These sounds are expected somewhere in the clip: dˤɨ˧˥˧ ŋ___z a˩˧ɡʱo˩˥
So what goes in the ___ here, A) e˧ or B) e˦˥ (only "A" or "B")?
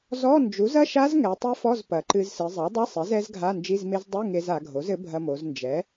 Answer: A